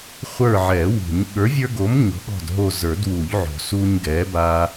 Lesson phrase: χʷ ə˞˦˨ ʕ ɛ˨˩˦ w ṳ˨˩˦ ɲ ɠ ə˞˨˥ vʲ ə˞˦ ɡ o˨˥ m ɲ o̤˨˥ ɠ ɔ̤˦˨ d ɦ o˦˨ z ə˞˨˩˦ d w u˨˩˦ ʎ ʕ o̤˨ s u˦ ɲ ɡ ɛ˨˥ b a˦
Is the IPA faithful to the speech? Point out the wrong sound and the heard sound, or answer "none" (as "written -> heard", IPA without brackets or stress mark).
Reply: none